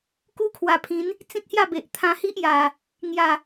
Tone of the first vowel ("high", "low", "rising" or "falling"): high